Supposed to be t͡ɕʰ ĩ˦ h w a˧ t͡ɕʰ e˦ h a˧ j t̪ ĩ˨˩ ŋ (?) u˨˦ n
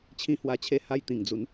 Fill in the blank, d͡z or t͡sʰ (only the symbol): d͡z